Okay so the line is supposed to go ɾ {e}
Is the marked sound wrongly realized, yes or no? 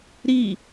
yes